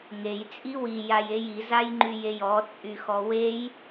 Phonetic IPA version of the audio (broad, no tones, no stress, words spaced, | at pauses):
ŋej t͡sʼiwi jajeji zajŋ͡ǃyjejɔ t͡sʼyxɔwej